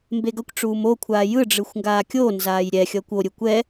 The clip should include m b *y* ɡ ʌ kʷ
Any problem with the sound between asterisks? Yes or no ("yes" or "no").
yes